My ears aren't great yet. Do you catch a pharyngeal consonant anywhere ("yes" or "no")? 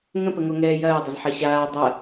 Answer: yes